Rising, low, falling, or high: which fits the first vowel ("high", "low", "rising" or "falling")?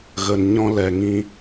low